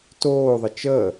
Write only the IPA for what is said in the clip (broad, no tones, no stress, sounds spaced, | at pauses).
t oː ðˤ ə t͡ʃ əː